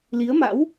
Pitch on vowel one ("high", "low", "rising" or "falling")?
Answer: rising